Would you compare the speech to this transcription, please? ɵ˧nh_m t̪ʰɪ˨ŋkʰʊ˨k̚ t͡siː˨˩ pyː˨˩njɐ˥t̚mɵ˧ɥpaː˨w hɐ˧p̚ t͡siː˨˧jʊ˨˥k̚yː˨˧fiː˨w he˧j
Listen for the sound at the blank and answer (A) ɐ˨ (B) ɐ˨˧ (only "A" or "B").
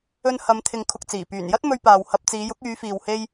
B